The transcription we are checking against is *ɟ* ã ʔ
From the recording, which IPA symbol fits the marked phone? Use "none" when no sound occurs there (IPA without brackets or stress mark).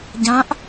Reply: ɟ